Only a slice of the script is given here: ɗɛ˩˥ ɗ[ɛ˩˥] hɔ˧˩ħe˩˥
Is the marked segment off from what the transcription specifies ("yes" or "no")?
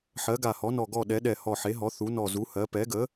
yes